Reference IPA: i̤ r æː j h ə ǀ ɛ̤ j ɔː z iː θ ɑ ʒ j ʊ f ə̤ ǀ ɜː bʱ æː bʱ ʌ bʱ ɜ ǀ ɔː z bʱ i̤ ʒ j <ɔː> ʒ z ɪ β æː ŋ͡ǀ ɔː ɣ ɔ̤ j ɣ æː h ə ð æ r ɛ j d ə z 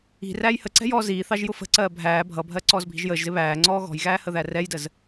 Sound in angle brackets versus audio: incorrect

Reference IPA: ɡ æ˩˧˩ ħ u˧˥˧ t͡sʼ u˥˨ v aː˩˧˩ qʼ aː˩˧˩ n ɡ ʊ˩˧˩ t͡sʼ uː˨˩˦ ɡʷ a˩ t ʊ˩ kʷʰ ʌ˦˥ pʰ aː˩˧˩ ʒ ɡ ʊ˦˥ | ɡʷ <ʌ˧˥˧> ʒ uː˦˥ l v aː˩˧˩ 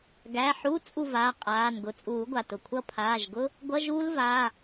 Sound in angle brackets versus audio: correct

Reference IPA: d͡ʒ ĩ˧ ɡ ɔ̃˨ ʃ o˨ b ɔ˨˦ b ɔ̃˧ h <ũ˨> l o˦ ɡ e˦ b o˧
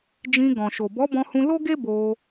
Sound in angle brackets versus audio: incorrect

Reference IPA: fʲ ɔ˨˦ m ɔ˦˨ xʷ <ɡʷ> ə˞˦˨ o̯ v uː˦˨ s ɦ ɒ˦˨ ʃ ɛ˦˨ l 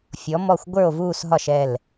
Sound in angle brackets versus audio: correct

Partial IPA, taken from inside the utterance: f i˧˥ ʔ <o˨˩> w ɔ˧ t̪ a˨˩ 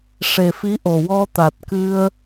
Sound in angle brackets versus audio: correct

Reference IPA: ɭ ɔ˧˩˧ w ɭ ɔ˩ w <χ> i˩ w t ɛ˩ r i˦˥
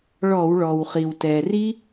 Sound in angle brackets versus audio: correct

